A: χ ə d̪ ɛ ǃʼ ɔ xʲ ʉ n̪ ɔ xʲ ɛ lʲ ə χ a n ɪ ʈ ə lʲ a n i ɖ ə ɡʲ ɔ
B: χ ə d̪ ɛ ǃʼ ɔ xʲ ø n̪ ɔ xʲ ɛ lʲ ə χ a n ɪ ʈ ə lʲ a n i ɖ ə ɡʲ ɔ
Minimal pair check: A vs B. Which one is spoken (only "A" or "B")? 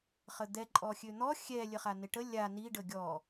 B